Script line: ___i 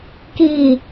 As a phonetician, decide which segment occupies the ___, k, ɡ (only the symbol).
k